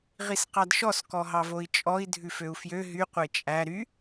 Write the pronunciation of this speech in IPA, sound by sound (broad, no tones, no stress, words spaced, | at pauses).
ʁisqɑdʃɔs kɔɦɑvoi̯t͡ʃʼɔi̯ dʱʉføu̯fjø ɦy qʷet͡ʃʼæ ɾy